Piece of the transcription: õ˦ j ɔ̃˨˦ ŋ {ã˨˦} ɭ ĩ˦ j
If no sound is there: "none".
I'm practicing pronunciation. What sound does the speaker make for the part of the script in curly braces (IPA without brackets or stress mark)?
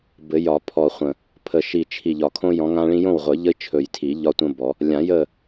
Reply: ã˦